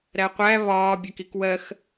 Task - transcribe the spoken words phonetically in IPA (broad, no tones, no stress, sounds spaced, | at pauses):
ɾ æ qʷ æ β ɒː bʲ ɜ k i k w ɜ x